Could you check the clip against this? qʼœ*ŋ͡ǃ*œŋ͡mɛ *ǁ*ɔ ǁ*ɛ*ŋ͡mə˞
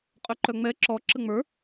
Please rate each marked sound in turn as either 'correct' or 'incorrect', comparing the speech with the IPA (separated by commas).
incorrect, correct, incorrect